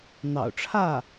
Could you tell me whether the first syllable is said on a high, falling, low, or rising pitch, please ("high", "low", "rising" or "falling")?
low